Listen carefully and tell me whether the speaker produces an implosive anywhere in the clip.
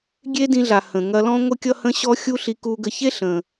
no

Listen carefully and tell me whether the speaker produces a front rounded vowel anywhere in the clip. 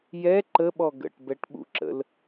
no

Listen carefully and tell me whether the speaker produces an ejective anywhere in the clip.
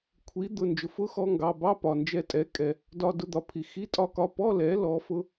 yes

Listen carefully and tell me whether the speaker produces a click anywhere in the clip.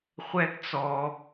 no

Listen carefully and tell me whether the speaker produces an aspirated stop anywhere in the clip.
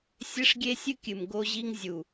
no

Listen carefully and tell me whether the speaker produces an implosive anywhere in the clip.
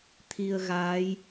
no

